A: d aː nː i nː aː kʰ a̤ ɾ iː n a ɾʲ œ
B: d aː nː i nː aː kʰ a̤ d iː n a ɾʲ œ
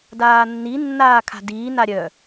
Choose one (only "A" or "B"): B